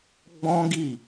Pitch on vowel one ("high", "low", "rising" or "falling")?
high